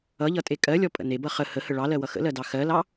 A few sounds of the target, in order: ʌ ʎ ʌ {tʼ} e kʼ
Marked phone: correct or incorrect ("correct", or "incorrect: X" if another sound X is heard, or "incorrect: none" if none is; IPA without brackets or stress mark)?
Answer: correct